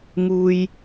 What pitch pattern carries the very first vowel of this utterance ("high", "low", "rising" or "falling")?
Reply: low